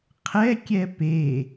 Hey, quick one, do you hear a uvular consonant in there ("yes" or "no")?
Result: yes